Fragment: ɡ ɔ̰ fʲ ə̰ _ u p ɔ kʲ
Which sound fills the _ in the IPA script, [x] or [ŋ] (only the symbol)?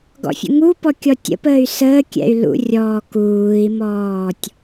ŋ